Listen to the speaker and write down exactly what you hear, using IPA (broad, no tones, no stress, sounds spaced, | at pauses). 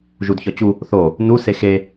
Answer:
ʒ u d ç ɒ t͡ɕ u | θ o | n u s e x e